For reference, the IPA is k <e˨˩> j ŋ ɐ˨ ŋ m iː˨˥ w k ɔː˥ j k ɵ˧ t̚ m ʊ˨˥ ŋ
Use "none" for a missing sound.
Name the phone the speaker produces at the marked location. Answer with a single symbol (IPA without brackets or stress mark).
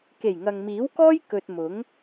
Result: e˨˩